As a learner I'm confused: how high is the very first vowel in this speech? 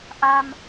low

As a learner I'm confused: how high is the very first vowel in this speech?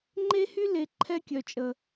mid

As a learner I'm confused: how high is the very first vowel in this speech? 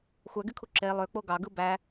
low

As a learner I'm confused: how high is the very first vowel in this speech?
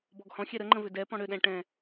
mid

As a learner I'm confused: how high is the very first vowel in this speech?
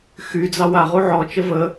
high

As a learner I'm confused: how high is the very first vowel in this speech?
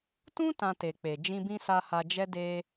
high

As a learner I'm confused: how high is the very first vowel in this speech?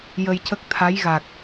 mid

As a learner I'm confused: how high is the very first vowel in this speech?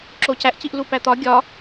mid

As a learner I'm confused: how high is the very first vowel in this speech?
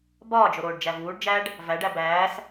low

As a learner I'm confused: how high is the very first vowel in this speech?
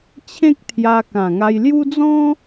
mid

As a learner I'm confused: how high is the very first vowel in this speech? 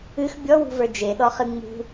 high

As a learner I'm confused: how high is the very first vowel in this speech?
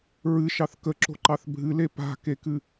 high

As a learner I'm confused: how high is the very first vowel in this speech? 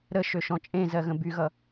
mid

